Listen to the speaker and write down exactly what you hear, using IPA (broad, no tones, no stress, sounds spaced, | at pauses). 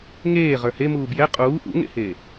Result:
ŋ eː ʁ ə˞ h e m uː b j ɛ qʼ uː ʔ ṵ ŋ ḛ h eː